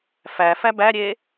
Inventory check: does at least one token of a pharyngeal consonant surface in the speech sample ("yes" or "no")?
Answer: no